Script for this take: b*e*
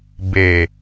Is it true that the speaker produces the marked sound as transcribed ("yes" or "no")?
yes